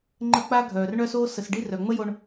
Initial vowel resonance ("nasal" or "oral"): oral